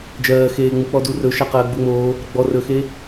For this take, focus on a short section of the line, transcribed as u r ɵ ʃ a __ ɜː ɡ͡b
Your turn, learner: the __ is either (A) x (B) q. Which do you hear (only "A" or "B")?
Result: B